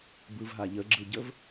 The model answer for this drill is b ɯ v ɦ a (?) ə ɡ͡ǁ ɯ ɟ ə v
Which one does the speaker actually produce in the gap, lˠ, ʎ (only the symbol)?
ʎ